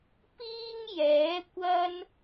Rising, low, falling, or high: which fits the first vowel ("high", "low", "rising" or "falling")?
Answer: high